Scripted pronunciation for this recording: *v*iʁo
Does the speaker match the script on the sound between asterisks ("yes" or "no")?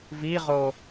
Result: yes